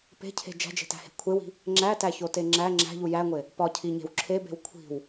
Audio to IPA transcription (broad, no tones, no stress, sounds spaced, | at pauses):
p e̤ cʰ e̤ d͡ʒ æ̤ d͡ʒ e̤ t æ̤ h e̤ kʷʰ e w i̤ | ŋ͡ǁ æ t æ ç o t e ŋ͡ǁ æ ŋ͡ǁ æ̤ ʎ u j æ ŋʷ e | p ɒ cʰ i ɲ e̤ w ǁʰ e b e̤ w kʷʰ i̤ w